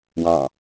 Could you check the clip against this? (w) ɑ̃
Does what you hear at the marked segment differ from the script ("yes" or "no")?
no